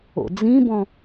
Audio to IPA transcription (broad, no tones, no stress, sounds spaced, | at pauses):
o̰ d͡z ĩ b ɔ̃